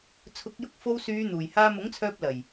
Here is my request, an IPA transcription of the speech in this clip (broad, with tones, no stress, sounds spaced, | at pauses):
t͡sʰ ʊ˨˥ k̚ j ʊ˧ k̚ f o˧ w s yː˨˧ n̪ uː˨˩ j h aː˧ m ʊ˨˥ ŋ t͡sʰ œː˧ p̚ l ɐ˨˩ j